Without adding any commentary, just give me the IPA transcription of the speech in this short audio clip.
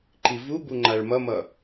ǃ i v u b u ŋ͡ǃ a ɭ m ʌ m ʌ

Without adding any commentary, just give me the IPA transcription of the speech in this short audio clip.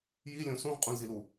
j i lʲ õ s ũ ʁ qʼ ũ l z i l u

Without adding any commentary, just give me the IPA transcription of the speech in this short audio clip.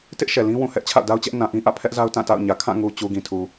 t ɪ˦ ʔ ʃ ɛ˨ l ĩ˦ w ũ˨ h ɛ˦ ʔ t͡ɕʰ a̰˦˨ ʊ̯ d a˦ ʊ̯ t͡ɕ ɛ˦ ʔ n ã˨ ʔ ĩ˦ ʔ ä̰˦˨ pʰ ɛ˦ ʔ z a˦ ʊ̯ t ã˦˨ t a̰˦˨ ʊ̯ ɲ ä˨ kʰ ã˦˨ ŋ u˨ t͡ɕ u˨ ɡ ĩ˨ tʰ u˨

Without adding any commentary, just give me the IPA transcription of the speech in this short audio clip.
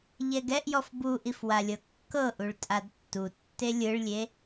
ʎ ɛ ɡ ɛ ʔ j ɔ f b u ʔ i f w a lʲ ɤ kː ɤ ʔ u ɭ tʼ a d tː u tː e lʲ ɯ ɭ lʲ e

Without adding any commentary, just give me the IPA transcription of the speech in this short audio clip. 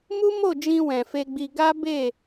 m u˦ m o˦˨ d͡ʒ ĩ˧ w ɛ̃˨ f e˧ ɡ͡b i˧ ɡ a˦ b e˦˨

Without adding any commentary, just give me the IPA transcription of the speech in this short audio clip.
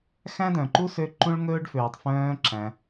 x æ̃˥ d œ̃˩ ǃ u˥ s ø˧ ǃ ũ˥ ɭ ŋ ɵː˥ ɖ f øː˩ tˤ f œ̃ː˧ ǁ æ̃˩

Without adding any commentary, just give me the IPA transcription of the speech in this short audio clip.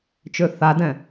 t͡ʃ ø θ a d ɛ̃

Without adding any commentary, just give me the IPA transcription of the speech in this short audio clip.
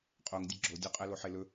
qʼ o ŋ dʲ ə ɡ͡ǁ o dʲ o qʼ ɛ l o ħ e l ɵ

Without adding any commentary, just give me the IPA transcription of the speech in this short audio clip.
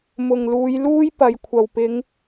m ʊ˨ ŋ l uː˨˧ j l uː˥ j p ɐ˨ j kʷʰ ɐ˨˩ w p ɪ˨˧ ŋ

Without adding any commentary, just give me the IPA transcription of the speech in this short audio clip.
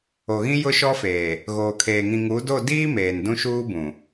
o˨ ɣ ĩ˦ j ʊ˦ ʃ ɔ˦ f eː˨ | ɣ oː˨ kʰ eː˨ ŋ ĩ˨ ŋ u˨˦ d o˦˨ d iː˦ m eː˨ n d ũ˦ ʃ uː˦ b ũ˨

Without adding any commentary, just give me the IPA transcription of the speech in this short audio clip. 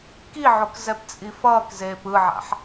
k i ʕ o k z ɛ p t͡sʼ i f ʌː k z eː p ɯ ʕ a̰ ħ

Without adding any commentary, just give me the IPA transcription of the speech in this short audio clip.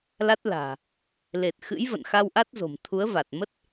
l a˦˥ t̚ l a̤ː˨˩ | l e˨˩ t̚ x ɨ̰˧˥ j v ə̰˧˨ n x a˧ w ʔ a˦˥ t̚ z o̤˨˩ m t̪ʰ u˨˦ ə̯ v a˨˩ t̚ m ə˦˥ t̚

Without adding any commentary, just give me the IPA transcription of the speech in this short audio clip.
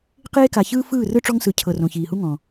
q eː˦ k a˨ ç ɯː˦ f ɯː˦˨ r ɯ˦ ʈ͡ʂ ɔ˦ ŋ s ɯ˨ cʰ ɤ˨ r õ˨ ç iː˨ h u˦ ŋ ɔ̃˨

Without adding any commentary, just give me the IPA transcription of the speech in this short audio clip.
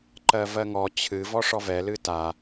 ǃ ɜ v ɜ ŋ ɔ t͡ɕʰ ɨ v ɔ ʂ ɔ v ɛ l ɨ t a

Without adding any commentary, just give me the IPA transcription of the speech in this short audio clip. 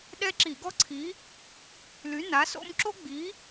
ɗ ɛ˥ ǁ i˧˩˧ ɡ ɔ˥ ǀʰ i˨˥ | l y˨˥ n a˨˥ s o̰˥ m ǁ o˥ ɡ͡b i˨˥

